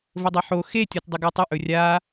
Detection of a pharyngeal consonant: present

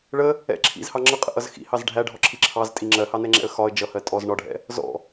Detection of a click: present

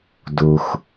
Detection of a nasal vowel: absent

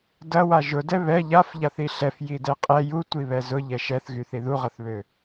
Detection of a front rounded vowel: present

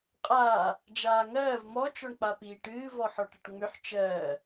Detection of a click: absent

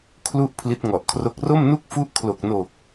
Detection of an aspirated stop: present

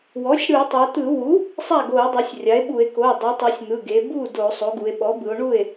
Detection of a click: absent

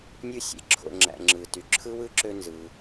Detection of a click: present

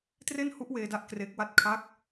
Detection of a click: absent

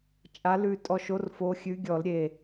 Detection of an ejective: present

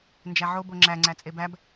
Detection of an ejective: present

